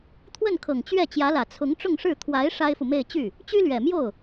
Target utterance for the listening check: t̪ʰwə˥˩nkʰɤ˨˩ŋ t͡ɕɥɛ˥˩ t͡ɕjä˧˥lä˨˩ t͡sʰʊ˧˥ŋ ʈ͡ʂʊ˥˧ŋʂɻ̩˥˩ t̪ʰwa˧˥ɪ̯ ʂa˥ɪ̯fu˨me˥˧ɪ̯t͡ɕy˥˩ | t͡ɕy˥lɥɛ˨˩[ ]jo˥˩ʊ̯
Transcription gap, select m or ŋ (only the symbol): m